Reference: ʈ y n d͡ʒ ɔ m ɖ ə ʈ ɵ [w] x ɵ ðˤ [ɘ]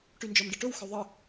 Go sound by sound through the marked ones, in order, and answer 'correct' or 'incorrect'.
correct, correct

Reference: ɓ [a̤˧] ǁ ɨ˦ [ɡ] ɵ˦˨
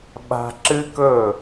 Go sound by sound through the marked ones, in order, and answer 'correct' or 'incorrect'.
correct, incorrect: k

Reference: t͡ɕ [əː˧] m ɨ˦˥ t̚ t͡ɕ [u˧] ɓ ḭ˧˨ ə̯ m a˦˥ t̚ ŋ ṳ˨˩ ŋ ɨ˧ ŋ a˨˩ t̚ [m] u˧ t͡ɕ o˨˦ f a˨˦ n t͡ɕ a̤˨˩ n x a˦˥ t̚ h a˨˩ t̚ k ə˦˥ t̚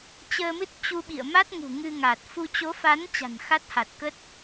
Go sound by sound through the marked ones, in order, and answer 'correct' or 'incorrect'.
correct, correct, incorrect: f

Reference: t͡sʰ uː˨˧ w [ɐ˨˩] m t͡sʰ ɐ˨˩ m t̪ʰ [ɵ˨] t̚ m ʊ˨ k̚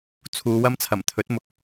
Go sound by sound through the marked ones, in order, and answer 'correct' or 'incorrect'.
incorrect: ɐ˥, incorrect: ɵ˨˥

